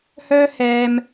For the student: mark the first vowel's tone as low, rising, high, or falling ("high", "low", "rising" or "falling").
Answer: high